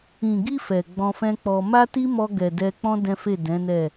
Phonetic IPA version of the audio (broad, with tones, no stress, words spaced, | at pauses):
ĩ˨ɡi˧ fɛ˨ɡ͡bɔ̃˧fɛ̃˦k͡pɔ˧ ma˦ti˦mɔ˧ ɡɛ˨dɛ˧k͡pɔ̃˦ dɛ̃˦fe˦˨dɛ̃˨˦nɛ˦˨